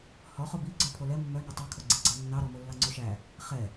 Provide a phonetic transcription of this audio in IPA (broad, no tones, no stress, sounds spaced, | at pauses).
h ɔ χ o b i ɡ͡ǀ œ pʰ o l ɛ mː œ n ɛ tˤ ɛ kʰ o ɡ͡ǀ i ɡ͡ǀ ɑ nː ɑ ɾ ɔ m o lː ɑ ŋ͡ǀ o ʃ æ | χ ɛ